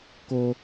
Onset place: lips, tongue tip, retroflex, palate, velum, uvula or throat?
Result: velum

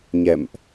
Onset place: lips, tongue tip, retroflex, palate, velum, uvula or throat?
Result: palate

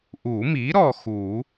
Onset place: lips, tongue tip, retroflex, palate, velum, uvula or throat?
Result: throat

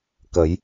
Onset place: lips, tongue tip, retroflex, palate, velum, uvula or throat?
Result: velum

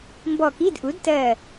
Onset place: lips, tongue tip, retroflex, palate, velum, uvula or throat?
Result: lips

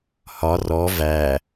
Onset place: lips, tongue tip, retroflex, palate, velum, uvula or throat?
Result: throat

